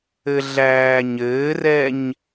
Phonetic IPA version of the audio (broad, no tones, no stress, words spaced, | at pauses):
ɘɮæːɲɘːrɛɲ